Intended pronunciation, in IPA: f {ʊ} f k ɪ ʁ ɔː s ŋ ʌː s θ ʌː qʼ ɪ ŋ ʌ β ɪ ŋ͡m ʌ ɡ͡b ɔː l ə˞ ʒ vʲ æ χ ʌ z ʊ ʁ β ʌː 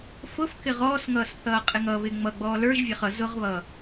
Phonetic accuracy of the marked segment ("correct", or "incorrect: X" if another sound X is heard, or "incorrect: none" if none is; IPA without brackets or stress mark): correct